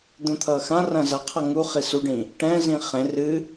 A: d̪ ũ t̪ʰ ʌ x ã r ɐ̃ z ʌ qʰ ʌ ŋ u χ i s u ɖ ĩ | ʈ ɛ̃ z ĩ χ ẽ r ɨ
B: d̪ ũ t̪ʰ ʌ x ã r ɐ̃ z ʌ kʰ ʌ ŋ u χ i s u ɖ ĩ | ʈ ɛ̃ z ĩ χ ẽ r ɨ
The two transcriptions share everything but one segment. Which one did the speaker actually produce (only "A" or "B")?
A